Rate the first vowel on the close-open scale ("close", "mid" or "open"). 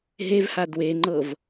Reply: mid